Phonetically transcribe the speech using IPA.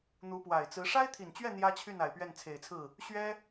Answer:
n̪ u˧˥ p w a˨˩ ɪ̯ t͡s ɹ̩˧˥ ʂ a˥ ɪ̯ t̪ʰ i˨˩ n t͡ɕ ɥ ɛ˥˩ n̪ j ä˥ t͡ɕʰ y˥˩ n a˨˩ ɪ̯ p ɥ ɛ˥˩ n t͡sʰ e˨˩ ɪ̯ t͡sʰ ɹ̩˥˩ | ɕ ɥ ɛ˥

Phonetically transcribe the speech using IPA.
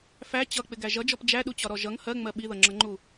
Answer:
f æ t͡ɕ ʌ k͡p ɪ ɡ æ ʒ ʌ d͡ʒ ɔ p d͡ʒ æ ɗ u t͡ɕ ɒ ɾ ɔ ʒ ʌ ŋ h ɜ ŋ͡m ɜ ɓ i ð ʌ ŋ͡ǁ ʌ ŋ͡ǃ u

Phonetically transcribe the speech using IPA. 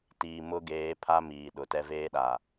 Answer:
t iː˨ m ʊ˦ ɡ eː˨˦ pʰ a˦ m iː˨ ɗ ʊ˨ t ɛ˦ v eː˦ ɗ a˨

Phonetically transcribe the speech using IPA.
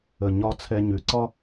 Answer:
ə˨ ɲ ɒ˧ t͡sʰ ɛ˧ ɲ ʉ˨ ǀ ɒ˦

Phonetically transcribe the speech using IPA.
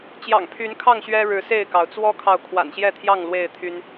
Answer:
t͡ɕ j ɑ̰˨˩ ŋ pʰ y˨˦ n kʰ ɑ˥˨ ŋ ɕ ɥ ɛ˦ ɻ ɻ̩˨˦ s e˥˨ ɪ̯ k ɑ˩ ʊ̯ t͡s w ɔ˦ kʰ ɑ˨ ʊ̯ kʰ w a̰˨˩ n ɕ j ɛ˥˨ t̪ʰ j ɑ˥˨ ŋ l w e˥˨ ɪ̯ t̪ʰ y˦ n

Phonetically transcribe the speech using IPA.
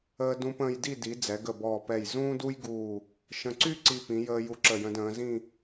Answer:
əː˧ d ũ˧ p ə̃ː˧ j d i˥˧ d i˩˧ d͡z ɛ˩˧ ɡ ə˧˩ b ɔː˧˩ p ɛ˧˩ j z ũː˥ d u˥ j ɡ uː˧˩ | ʃ ə̃˧ ǀ y˥ ǀ i˧ p ĩ˩˧ j əː˧ j u˧ ǁ ə˧˩ j ə̃˧ d ə̃ː˩˧ z ĩ˥˧

